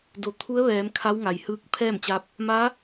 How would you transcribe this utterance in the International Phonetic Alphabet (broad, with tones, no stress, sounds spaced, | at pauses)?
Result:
d o˩˧ t̪ʰ u˧˥ ə̯ ʋ ɛː˩˧ m kʰ a˧˥ w ŋ a˩ j h ɯː˧ k̚ pʰ ɛː˥˨ m t͡ɕ a˧ p̚ | m a˧˥